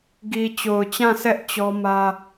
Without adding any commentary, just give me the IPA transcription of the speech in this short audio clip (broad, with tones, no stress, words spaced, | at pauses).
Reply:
ɡi˨t͡ɕo˨ʊ̯t͡ɕã˦˨sɛ˦ʔ t͡ɕɔ˦mä˦